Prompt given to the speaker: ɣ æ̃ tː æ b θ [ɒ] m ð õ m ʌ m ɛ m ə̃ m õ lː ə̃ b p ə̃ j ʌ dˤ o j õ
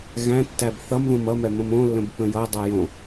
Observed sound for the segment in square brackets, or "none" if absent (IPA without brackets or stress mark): ʌ